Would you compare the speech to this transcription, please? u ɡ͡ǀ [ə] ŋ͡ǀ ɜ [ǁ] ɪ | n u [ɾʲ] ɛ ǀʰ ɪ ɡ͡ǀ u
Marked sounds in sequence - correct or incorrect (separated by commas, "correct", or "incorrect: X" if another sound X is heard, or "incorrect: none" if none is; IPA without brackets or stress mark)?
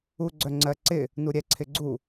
incorrect: œ, incorrect: ǀ, correct